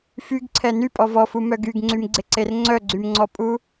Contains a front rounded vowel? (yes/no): yes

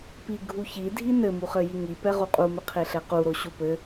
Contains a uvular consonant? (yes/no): yes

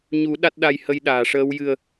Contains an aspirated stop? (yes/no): no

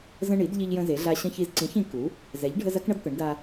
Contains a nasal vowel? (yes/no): yes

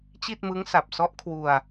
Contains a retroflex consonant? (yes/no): no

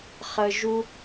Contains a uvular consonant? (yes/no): yes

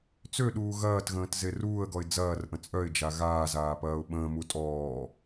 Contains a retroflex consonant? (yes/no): no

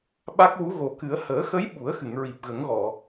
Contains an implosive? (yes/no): yes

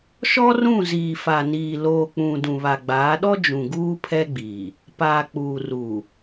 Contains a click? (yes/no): no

